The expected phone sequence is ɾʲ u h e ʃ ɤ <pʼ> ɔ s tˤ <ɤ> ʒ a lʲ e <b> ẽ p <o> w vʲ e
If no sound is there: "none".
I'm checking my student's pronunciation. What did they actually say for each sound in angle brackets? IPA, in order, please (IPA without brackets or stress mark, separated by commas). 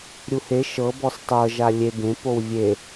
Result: b, ɤ, b, o